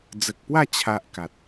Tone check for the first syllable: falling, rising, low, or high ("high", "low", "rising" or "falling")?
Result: low